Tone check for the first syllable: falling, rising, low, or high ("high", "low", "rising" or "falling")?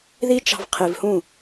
high